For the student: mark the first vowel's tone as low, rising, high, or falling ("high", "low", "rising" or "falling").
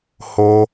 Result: high